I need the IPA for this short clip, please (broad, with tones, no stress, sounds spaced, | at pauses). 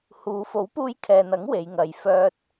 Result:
h uː˨˧ f o˨˥ w p uː˧ j kʰ ɛː˨ n̪ ɐ˨˥ ŋ w e˨˧ j ŋ ɐ˨ j f œː˧ t̚